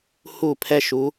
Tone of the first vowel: falling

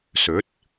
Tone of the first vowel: rising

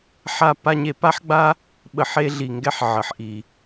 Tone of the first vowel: falling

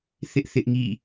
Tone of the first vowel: high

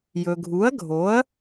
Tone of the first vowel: low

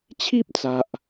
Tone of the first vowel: high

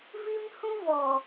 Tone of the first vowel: high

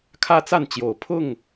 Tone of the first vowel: high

